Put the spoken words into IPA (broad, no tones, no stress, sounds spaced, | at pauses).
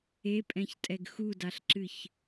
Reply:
e pʼ ɛ̃ ç tʼ ɛ ɡ x u d a ɬ ǁ ɨ ç